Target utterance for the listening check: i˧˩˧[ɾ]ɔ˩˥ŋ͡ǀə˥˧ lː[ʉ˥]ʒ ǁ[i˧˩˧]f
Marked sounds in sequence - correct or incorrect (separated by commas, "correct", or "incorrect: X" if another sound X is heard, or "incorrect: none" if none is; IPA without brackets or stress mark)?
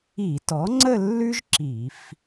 incorrect: t, correct, correct